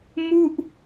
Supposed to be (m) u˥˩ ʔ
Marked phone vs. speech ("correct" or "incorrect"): correct